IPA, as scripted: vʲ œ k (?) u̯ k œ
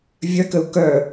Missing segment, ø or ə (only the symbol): ə